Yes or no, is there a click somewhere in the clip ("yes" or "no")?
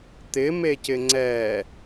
yes